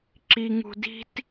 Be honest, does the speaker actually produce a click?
yes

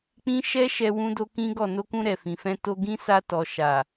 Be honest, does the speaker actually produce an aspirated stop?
no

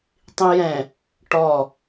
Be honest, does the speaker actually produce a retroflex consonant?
yes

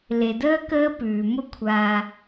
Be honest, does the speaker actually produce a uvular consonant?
no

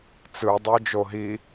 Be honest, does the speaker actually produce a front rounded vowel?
yes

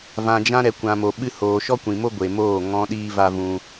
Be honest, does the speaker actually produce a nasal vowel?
yes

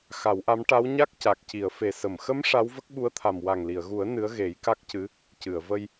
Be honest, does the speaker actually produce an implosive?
yes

